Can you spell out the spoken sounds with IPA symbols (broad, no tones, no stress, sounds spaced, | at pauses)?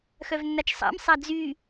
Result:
x œ v nː a t͡ʃ sˤ a̰ m sˤ a d͡z y